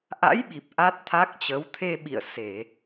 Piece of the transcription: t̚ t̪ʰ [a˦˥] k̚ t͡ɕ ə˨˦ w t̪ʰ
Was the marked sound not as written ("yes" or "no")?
no